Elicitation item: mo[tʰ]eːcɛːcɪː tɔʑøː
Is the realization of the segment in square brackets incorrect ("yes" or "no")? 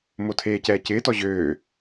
no